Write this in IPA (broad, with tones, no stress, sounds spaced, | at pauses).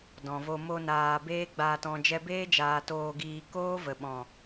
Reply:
d ɔ̃˨ v o˧ m o˧ n aː˨ b eː˦ ɡ͡b aː˧ t ɔ̃˧ d͡ʒ ɛ˧ b eː˦ d͡ʒ aː˨ t oː˧ ɡ iː˧ k oː˦ v ə˨ ɓ ɔ̃˨